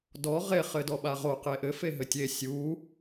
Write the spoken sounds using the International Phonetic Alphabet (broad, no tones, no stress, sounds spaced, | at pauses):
d ɔ ʁ e χ ɘ d ɔ ɓ a ʁ o q e ʔ ɘ f e ɦ ɘ tʲ e sʲ u